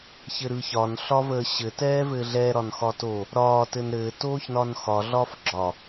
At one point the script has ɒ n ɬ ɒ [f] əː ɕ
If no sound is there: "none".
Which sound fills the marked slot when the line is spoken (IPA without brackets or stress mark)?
v